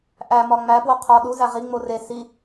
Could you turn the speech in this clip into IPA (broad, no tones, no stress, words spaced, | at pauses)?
ʔæmɒ ŋ͡mæpwo qʰɒ ɗuzæ ʁiŋ͡mo re si